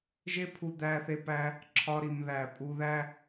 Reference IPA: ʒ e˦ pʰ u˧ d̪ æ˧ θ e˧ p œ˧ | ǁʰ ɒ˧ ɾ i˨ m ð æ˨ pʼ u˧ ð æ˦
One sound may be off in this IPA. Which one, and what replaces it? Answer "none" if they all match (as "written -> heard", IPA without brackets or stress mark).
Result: œ˧ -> æ˧